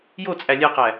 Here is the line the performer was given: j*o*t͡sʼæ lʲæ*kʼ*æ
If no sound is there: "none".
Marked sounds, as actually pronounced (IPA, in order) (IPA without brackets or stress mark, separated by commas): o, q